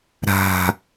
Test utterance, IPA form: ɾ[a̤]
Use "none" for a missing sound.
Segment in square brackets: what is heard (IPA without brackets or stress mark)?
a̤